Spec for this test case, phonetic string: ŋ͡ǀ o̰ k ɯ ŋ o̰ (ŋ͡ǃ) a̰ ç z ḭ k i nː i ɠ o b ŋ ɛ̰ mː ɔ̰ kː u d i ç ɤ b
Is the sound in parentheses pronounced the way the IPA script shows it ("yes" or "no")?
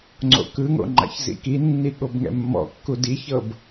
yes